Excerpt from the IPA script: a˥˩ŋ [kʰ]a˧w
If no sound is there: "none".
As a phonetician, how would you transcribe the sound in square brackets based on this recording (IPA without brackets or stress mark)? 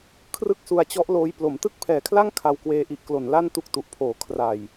kʰ